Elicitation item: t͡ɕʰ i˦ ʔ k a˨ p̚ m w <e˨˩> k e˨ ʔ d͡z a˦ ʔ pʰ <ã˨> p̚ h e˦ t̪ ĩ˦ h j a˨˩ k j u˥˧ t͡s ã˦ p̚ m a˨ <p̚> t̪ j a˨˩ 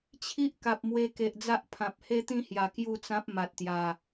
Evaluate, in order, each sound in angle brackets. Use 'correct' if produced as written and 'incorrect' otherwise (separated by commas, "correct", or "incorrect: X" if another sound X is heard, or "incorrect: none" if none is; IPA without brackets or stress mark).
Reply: incorrect: e˧, correct, incorrect: t̚